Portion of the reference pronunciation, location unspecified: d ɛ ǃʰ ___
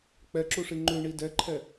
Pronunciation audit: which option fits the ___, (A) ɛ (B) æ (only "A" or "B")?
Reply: A